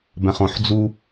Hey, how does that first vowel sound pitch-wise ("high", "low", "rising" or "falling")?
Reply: low